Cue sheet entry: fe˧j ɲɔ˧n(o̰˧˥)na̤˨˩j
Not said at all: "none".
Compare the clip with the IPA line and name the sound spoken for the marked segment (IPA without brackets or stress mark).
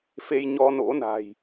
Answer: o̰˧˥